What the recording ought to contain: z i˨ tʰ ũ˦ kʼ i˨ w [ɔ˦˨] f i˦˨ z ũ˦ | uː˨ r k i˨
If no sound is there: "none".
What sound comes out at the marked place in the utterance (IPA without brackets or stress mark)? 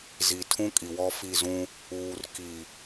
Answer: ɔ˦